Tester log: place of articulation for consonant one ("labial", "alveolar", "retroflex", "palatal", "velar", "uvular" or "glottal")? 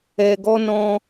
velar